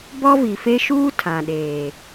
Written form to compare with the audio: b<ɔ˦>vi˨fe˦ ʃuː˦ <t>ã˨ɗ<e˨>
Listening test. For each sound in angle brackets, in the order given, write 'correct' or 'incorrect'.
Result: correct, incorrect: tʰ, incorrect: eː˨

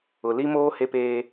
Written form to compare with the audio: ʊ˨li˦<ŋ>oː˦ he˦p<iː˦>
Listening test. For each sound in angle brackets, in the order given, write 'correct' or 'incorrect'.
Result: incorrect: m, incorrect: eː˦

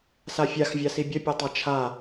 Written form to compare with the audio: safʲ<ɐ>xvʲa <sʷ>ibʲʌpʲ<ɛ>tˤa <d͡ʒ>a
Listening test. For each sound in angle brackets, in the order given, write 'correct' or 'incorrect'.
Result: incorrect: a, incorrect: s, correct, incorrect: t͡ʃʰ

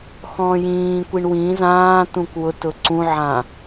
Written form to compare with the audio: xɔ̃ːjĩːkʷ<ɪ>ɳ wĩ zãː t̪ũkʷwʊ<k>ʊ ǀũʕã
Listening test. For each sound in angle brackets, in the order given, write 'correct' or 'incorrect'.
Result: incorrect: i, incorrect: t

